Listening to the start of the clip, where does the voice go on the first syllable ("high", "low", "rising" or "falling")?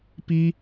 high